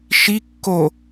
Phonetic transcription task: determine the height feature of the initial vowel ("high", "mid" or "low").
high